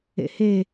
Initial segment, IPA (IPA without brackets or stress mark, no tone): ḛ